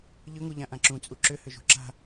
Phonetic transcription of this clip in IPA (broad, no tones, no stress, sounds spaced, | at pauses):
ʎ ʏ ŋ u ʎ ã ʔ ã ǁ ũ t͡sʼ u ǁ ʏ h ʏ ʒ ṳ ǁ a̤